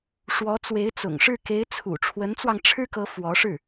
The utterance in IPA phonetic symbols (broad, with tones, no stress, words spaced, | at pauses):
ʂwɔ˧˥ t͡swe˧˥ɪ̯t͡sʊ̰˨˩ŋʂɻ̩˥˩ ke˧˥ɪ̯t͡sʰṵ˨˩ ʈ͡ʂʰwə˧˥nt͡swɑ˧ŋ ʈ͡ʂʰɻ̩˥kɤ˧˥ fwɔ˧˥ʂɻ̩˥˩